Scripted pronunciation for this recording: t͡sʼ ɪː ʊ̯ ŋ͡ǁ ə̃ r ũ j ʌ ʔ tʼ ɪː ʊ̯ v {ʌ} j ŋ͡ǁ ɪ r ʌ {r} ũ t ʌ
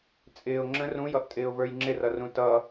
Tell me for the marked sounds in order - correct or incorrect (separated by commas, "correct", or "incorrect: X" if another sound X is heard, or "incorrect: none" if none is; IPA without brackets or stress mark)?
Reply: incorrect: ə˞, correct